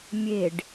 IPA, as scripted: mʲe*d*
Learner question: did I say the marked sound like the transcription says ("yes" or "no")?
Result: no